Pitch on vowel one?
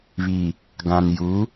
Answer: low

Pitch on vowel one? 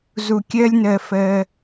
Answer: low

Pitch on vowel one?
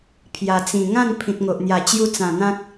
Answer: low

